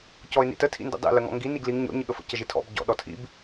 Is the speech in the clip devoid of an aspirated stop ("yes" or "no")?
no